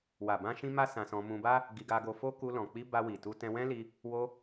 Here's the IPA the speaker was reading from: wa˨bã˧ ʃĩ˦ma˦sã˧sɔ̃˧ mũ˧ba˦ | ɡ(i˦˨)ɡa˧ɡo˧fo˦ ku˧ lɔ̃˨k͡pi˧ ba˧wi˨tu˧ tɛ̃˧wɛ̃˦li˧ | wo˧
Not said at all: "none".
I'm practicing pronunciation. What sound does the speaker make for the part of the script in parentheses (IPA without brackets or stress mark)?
i˧